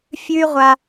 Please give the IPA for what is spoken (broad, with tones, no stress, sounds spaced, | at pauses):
fʲ ʉ˦ y̯ ʁʷ a˦